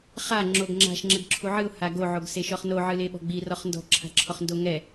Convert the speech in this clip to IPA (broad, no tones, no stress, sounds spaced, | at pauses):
χ a ŋ͡ǁ o ɡ ŋ͡ǁ a̤ ʃ ŋ͡ǁ ɘ ɡ ǁʰ u ʕ ɨ ʊ̯ h a ɡ o ʕ o ɡ s e ʃ ɔ χ n o ʕ ɨ l e ɓ ɔ̤ ɡ͡b i r ɔ χ n d ɔ̤ ǁʰ a̤ ǁʰ ɔ χ n d o ŋ ɛ